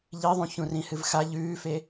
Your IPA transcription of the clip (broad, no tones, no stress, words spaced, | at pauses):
ʎiðˤũ çũrĩhɨvxa ʎʉːfe